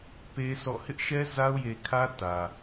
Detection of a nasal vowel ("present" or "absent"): absent